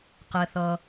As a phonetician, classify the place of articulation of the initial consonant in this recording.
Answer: uvular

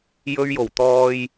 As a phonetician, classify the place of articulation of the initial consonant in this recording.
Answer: palatal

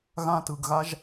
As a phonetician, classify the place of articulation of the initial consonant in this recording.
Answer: velar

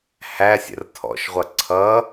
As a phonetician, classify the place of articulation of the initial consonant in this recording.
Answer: glottal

